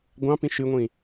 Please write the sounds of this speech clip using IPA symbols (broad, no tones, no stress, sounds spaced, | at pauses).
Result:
ɡʷ ɑ̃ p ĩ ʃ ɨ ŋʷ ĩ